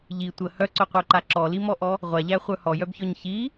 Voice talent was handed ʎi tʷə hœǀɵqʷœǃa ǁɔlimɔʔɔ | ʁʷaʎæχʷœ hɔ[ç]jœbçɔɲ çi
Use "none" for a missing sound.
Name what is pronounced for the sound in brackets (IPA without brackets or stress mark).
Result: none